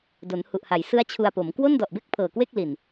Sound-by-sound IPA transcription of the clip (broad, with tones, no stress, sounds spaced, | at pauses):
d o˩˦ n h u˨˩ ʔ h a˩˦ j s ɯ˦˥ a̯ t͡ɕʰ u˧ a̯ p o˩˦ m k w o˥˩ n d ɔ˨˩ ʔ b e˥˩ k̚ pʰ ɤː˨˩ k w e˥˩ k̚ l i˨˩ n